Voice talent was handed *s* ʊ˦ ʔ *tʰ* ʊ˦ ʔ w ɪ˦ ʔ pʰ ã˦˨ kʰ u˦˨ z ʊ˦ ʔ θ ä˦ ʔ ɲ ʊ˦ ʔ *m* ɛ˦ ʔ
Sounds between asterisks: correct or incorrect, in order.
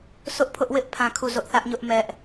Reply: correct, incorrect, correct

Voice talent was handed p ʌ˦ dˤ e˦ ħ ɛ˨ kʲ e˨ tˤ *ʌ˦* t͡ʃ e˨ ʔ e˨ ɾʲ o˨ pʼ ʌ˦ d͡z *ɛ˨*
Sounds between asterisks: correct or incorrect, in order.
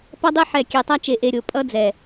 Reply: incorrect, correct

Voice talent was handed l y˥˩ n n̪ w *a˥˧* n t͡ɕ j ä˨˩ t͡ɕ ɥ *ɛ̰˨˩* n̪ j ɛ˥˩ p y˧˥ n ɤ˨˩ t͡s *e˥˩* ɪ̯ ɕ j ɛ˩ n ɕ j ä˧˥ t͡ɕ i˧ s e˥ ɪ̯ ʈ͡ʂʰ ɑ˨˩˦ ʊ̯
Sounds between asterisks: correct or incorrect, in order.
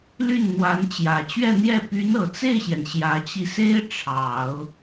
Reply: incorrect, incorrect, correct

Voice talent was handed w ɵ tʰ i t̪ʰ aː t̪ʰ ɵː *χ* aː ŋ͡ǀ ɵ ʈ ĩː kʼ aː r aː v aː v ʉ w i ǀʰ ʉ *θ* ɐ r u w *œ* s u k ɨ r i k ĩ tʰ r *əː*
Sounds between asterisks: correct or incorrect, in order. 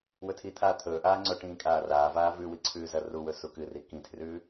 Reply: incorrect, incorrect, incorrect, incorrect

